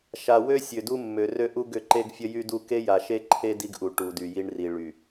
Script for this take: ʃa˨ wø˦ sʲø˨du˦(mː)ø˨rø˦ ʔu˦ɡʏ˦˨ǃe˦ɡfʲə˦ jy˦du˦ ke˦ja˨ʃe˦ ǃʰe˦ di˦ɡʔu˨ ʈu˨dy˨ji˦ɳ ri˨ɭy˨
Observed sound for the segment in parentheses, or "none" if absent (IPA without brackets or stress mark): mː